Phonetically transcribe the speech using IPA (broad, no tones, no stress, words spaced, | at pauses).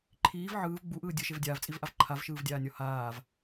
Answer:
ǃʰiːv ʕɯːv ɡ͡buʔɯː dʲɯʃev dʲaːvt͡sʼivʔav ǃʰavʃɯːvdʲaːnʲɔ haːv